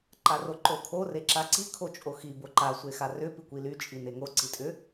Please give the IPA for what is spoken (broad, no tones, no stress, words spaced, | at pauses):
ǃaroǃokʰo reǁaǀi kʰot͡ʃʼoxi boǃa sʷexarʏ pikʷily t͡ʃʼineŋo ǀitʼʏ